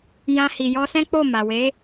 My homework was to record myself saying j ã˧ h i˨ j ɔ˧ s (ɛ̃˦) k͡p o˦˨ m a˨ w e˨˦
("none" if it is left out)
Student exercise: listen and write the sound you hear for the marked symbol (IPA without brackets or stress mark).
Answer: ɛ̃˦